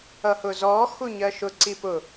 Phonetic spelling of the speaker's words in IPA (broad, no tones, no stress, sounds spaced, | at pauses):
ʌ h ʊ z ɔ x u ɲ ɜ ʃ ʊ ǀ i p ʊ